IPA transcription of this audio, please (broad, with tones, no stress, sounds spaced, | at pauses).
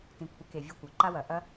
t ĩ˨ kʷʰ ɛ˨˦ k e˨ vʲ ɔ˧ kʷ ɐ˨ ǃ a˦ w ɐ˨ ʔ ɐ˦